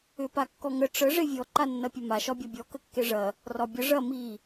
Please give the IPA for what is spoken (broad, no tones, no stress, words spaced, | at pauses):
ʏpakːɔ ŋə ʈ͡ʂə ʐevʲɔ ǃanːɐpʲɐma ʃɒbʲɒbʲɔ kəkːeʐɐ | rɒbʲə ʐɐ mi